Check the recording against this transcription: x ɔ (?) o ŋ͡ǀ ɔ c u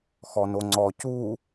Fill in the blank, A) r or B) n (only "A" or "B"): B